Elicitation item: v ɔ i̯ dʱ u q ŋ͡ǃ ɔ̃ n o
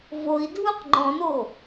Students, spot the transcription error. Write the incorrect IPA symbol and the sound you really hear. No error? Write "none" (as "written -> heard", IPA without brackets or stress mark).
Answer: ɔ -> o